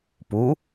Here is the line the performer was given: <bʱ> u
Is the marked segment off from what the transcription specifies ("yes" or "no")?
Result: yes